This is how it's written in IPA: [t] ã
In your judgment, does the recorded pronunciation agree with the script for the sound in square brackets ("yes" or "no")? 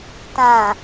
yes